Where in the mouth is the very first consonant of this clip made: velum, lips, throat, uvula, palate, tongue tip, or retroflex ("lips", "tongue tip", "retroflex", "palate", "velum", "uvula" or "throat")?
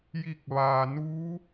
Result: palate